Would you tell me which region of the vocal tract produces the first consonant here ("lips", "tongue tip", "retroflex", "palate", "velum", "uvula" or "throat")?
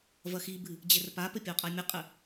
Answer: lips